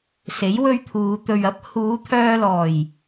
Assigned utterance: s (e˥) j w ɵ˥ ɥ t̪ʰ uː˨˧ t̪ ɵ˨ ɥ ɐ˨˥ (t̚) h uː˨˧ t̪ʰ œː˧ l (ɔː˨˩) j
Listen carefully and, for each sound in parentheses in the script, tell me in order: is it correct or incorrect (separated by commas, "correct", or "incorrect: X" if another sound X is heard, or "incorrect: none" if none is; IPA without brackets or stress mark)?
incorrect: e˨˥, incorrect: p̚, correct